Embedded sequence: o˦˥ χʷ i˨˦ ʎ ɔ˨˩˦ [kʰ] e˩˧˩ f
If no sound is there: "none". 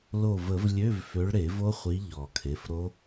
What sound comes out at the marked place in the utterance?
kʰ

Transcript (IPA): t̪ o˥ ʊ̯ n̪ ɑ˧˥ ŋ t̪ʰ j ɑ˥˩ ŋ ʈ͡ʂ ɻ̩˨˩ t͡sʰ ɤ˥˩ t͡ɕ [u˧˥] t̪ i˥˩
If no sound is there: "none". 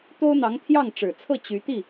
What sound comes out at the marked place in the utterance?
y˧˥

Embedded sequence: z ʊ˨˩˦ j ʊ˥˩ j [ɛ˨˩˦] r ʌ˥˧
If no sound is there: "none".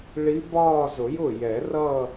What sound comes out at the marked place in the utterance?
ɛ˨˩˦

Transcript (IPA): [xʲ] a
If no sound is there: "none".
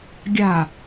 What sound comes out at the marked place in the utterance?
ɡʲ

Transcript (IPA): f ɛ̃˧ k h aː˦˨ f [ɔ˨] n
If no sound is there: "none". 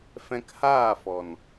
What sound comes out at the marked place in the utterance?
ɔ˨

